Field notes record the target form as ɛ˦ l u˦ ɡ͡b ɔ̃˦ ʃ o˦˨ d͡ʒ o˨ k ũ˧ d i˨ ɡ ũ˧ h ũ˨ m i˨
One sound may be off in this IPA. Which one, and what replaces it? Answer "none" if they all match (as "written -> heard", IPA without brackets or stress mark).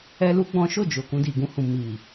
none